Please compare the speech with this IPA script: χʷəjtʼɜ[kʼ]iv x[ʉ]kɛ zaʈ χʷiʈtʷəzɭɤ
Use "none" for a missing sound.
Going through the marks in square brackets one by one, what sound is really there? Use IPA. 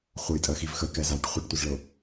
x, ə

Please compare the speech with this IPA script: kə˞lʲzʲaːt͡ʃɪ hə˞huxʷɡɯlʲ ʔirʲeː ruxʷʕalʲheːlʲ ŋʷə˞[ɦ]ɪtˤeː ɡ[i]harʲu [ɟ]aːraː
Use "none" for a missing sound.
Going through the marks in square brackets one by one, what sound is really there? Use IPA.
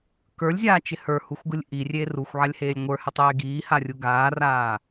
h, iː, ɡ

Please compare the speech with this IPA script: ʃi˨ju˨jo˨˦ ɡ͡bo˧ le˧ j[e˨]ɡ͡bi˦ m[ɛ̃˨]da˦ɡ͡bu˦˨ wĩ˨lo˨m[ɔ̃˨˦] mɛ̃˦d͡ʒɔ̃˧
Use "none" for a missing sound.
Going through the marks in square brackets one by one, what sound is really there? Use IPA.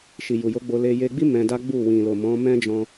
e˧, ɛ̃˧, ɔ̃˨˦

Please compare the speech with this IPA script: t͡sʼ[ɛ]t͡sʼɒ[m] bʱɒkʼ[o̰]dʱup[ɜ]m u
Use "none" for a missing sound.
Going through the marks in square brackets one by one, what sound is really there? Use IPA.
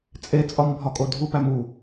e, m, o, æ

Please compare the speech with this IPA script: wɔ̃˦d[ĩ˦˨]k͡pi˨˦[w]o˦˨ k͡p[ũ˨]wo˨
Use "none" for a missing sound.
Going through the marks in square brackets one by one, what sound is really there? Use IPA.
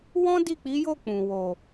i˦˨, j, ũ˨

